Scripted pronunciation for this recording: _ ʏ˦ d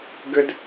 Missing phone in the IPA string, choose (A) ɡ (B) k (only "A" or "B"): A